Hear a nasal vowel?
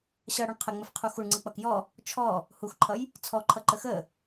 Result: no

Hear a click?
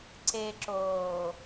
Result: yes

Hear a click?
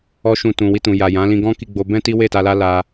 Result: no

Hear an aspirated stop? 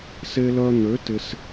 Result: no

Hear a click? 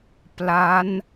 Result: no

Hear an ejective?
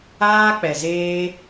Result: no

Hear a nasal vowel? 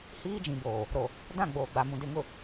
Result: yes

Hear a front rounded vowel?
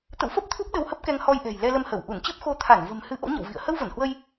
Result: no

